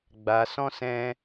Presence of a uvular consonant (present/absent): absent